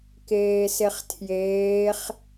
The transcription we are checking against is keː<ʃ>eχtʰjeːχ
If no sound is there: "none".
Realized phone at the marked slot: s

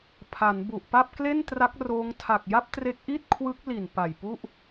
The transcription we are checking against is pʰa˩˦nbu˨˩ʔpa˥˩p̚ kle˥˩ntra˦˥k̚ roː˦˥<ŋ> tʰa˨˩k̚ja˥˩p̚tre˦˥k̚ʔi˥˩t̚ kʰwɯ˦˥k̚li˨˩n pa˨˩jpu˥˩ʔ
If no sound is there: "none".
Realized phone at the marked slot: ŋ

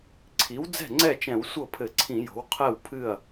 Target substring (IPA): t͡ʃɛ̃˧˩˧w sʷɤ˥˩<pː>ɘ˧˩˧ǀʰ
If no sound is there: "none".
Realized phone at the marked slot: pʰ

